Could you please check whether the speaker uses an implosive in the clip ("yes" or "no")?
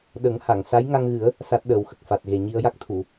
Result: yes